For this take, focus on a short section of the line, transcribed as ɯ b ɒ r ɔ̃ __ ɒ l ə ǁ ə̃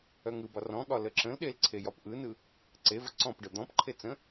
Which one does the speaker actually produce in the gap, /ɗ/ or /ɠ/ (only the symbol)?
ɠ